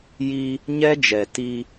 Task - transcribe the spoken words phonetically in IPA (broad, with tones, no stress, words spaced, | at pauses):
ji˦ | ɲɛ˦d͡ʒɛ˨ti˦